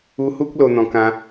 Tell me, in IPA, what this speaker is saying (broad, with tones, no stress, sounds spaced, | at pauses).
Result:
u˧ h u˦ k̚ l o˧ n̪ ɔ̃˧ k ã˦